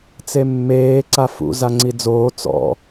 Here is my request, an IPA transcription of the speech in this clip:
t͡s e mː eː ǀ a f ṵ z a ŋ͡ǀ i d͡z oː t͡s ɔ̰

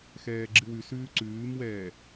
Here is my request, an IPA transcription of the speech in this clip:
x ɛː ɡ͡ǁ ɨ w ʉ s ʉː ǀ ʉː m w ɛː

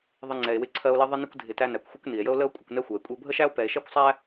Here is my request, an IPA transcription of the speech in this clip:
ðˤ ɪ˦ ŋ͡ǀ ɛ˨ e̯ w ɪ˦ ǀʰ ɜ˦ o̯ l i˦ ðˤ ɪ˥ n ɪ˥ kʷ dʱ ɪ˨ t æ˦ n æ˩ kʷ xʷ ɪ˥ kʷ n i˩ e̯ j ə˦ o̯ l ə˦ o̯ kʷʼ ɪ˨ kʷ n ɛ˦ xʷ ɜ˩ e̯ kʷʼ i˨ o̯ bʱ ə˥ ʃ æ˥ o̯ p ɛ˨ e̯ ʃ ɛ˥ kʷ sˤ æ˥

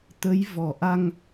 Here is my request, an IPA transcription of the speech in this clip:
t̪ ə˨˦ j v ɔ˧˩ ʔ a˧ ŋ

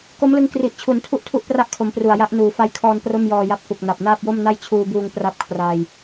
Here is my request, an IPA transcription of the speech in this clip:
k o˦˥ m l ɯ˧ ŋ k r i˨˩ ʔ t͡ɕʰ u˩˦ n tʰ u˥˩ ʔ tʰ u˥˩ ʔ p r a˥˩ ʔ kʰ o˩˦ m p r u˨˩ a̯ j a˦˥ ʔ n uː˩˦ f a˦˥ j kʰ ɔː˧ n p r o˥˩ m j ɔː˧ j a˦˥ p̚ k u˨˩ k̚ n a˨˩ p̚ n aː˥˩ p̚ j o˥˩ m n a˥˩ j t͡ɕʰ uː˧ b uː˧ ŋ p r a˥˩ p̚ kʰ r aː˧ j

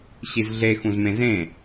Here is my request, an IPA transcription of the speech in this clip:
ɕ i z ɮ e x ũ z m ẽ z ẽ

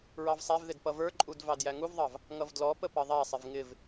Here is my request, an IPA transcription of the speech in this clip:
ɹ ɑ v sˤ æ v ð ɪ d p ʌ v ə˞ ǃʼ u d v ɑ d j æ ŋ u v ðˤ ɑ v | ŋ ʌ v d l ɔ p ə p ʌ ðˤ æ sˤ ɪ v ŋ ɪ v

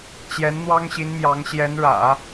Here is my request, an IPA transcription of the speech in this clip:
t͡ɕ j ɛ˧˥ n n̪ w ɑ˥ ŋ ɕ i˧˥ n m j ɑ˧˥ ŋ ɕ j ɛ˧˥ n ɻ ä̰˨˩˦

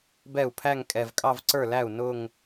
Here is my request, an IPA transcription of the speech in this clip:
b ɛ˥˩ u̯ pʰ æ˥˧ ŋ kʼ ɛ˨˩ v kʼ ɑ˥˧ v ǀ ə˞˥˩ l æ˥˩ u̯ n ʊ˥˧ ŋ

